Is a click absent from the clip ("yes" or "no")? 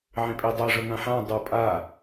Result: yes